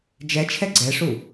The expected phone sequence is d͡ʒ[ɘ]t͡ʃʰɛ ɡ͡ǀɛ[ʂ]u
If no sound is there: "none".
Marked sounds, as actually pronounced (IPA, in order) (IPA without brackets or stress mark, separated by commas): ɛ, ʂ